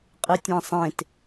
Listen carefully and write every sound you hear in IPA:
qʼ ɨ tʲ ɛ̃ sˤ ẽ t

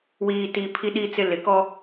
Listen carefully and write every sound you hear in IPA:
w iː˨ t i˨ pʰ i˦ ɗ i˦ t͡s ɪ˦ l ɪ˨ k ɔ˦

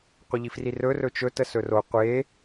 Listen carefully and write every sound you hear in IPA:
qʷ ə ʎ i f r i r ɵ r ɵ t͡ʃ ɵ t ə s ɵ r o qʷ e

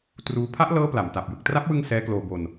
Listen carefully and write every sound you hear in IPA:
t r uː˦˥ pʰ a˦˥ ʔ l ɤː˦˥ p l a˨˩ m t a˨˩ p̚ j ɯ˨˩ k̚ t r a˦˥ p̚ w ɯ˧ ŋ s ɛː˦˥ k l oː˧ b o˧ n

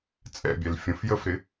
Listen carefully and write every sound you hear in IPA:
t͡sʼ ɛ̰ bʲ ɛ l fʲ ə̃ f j ə f ɾ ɪ

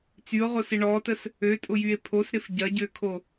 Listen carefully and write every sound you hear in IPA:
t͡s y o̯ ʁ o s ɪ ɳ ɔ t ə s | ø tʼ ʊ j y e̯ pʰ o s ɾ ɪ f ɟ ɐ ɟ ø kʰ o

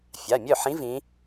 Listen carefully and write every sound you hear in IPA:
fʲ a˩˧˩ mʲ œ˥˩ ħ ĩ˧˥ v ĩ˧˥

